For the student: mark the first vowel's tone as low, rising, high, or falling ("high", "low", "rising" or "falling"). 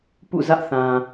falling